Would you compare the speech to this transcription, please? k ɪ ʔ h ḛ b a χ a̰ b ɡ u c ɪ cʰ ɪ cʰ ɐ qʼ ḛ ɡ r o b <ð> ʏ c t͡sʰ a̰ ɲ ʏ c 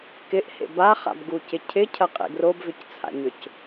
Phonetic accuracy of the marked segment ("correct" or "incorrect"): incorrect